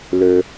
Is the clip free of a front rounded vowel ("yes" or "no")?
no